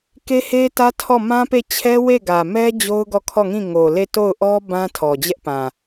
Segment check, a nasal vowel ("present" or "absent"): present